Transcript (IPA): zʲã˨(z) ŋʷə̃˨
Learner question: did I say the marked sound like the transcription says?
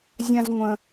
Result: yes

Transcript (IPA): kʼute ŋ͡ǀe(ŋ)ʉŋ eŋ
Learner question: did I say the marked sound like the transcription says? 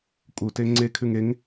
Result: no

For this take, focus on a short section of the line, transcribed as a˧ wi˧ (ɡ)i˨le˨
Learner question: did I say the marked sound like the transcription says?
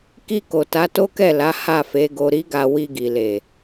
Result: yes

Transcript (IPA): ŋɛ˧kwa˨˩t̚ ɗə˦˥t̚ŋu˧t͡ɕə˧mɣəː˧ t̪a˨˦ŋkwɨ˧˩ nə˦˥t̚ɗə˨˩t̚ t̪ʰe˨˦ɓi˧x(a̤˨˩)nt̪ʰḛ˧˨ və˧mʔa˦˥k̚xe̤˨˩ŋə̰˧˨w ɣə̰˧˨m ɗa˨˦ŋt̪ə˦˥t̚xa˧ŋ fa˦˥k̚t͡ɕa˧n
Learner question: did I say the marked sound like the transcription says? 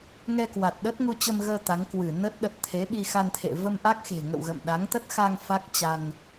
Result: no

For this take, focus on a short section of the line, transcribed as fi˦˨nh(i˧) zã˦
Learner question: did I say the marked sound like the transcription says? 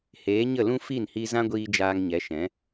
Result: yes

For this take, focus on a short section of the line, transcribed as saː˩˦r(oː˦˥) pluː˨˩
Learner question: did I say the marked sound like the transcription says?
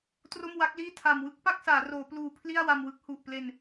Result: no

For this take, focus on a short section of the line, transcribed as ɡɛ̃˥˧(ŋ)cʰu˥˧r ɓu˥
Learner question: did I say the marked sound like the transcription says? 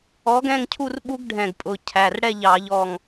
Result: yes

